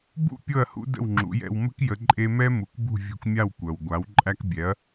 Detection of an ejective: present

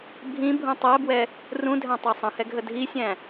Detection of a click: absent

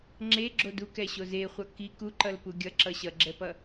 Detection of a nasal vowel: absent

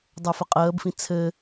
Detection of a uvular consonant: present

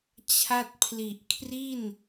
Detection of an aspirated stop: present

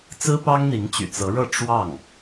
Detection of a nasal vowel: absent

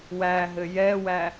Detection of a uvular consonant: absent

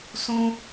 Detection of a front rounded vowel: absent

